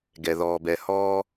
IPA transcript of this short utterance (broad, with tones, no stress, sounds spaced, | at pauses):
ɡ ɛ˨ ð ɔː˨ b ɛ˨ h ɔː˧